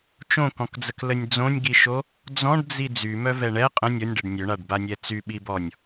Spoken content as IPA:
t͡ʃõkɔ̃kd͡zəklənʲ d͡zõnʲɡiʃo | d͡zɔ̃ɖd͡zi d͡zymœvɛ ɳɛ qʼə̃ nʲɔnʲɖɛɖ nʲøɳaɖbanʲɛ t͡syɓibɔnʲ

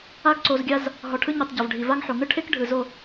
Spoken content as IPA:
a˦ɡ ǀo˧zɡʲa˦z | ɦɔ˨ʈʰɯ˧ɲo˨tˤ ɟɔ˨vɖʱi˨va˦ŋħo˨ ŋɯ˦ʈʰe˦k ɖʱɯ˨zo˦˨

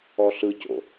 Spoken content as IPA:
ɔɬɯco̰

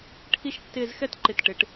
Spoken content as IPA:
ʈʰi˥ʃtːɪː˥˧z xɛ˥tǃɪ˧˩t ʈɪ˩˧ʈ

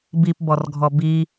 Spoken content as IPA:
bipbɔrɡʱɔ bi

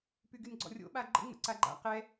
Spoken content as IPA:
pyɡynɡ͡ǀɔ̰rʲo̰ ɓaɡ͡ǃə̰ ŋ͡mə̰ǀaɡ͡ǃa̰ qɛ

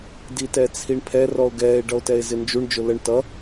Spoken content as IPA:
ditɛt͡sʰiɳpʰɛ rɔo̯ɡɛːe̯ ɖʌo̯tɛe̯zɪnd͡ʒuɳ d͡ʒʊləɳ tʌ

